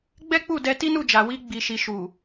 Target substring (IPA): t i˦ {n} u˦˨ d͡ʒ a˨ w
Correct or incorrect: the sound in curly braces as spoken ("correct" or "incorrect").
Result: correct